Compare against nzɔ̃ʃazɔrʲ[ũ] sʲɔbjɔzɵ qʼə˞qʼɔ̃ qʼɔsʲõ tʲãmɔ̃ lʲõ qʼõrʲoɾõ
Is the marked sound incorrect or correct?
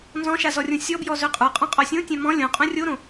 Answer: incorrect